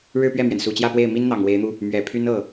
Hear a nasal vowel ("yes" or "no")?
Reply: no